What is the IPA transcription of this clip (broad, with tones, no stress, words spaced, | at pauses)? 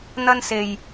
n̪ɐ˧nse˨j